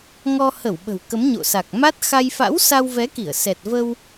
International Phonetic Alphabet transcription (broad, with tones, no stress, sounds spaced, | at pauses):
ŋ ɔ˧ h ə˧˩ w ɓ ə̤˨˩ w k ə˨˦ m ɲ o̰˧˨ s a˨˩ k̚ m a˦˥ t̚ x a˧ j f a̰˧˥ w s a˧ w v ɛ˨˦ k i˧˩ ə̯ s ɛ˨˩ t̚ v ə˧ w